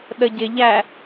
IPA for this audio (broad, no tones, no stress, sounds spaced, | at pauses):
ɗ ə ɟ ɪ ʎ æ